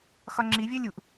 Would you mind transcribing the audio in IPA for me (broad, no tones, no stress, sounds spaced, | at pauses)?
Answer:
x ɒ ŋ͡ǁ i vʲ œ lʲ u ʔ